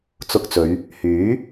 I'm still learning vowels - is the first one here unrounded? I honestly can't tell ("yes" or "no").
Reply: no